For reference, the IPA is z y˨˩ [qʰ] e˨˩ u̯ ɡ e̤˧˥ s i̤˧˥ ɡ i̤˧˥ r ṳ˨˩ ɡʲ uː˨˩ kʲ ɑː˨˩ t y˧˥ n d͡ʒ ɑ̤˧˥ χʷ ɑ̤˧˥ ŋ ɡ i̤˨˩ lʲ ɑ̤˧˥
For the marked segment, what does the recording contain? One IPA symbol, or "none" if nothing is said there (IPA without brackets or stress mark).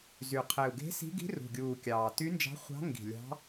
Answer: qʰ